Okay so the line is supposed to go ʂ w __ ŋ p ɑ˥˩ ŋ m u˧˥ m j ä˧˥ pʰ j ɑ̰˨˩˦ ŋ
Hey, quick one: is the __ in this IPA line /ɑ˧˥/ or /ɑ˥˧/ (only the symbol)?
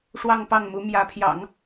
ɑ˥˧